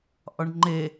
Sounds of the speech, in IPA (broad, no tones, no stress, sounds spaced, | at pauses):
ʔ ɒ ɳ ŋ͡ǃ e